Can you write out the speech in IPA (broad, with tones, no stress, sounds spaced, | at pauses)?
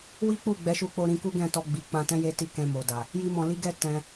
w i˦ k͡p u˦˨ ɡ͡b ɛ˨˦ ʃ u˧ k͡p o˧ ɾ ĩ˧ k u˦ ɡ ɛ̃˦˨ t ɔ˧ ɡ͡b i˨ k͡p ã˧ t ɛ̃˦ j e˦ t i˦˨ k ɛ̃˧ m o˨ d a˨ | j i˦ m ɔ̃˧ l i˦ ɡ ɛ˦ t ɛ̃˧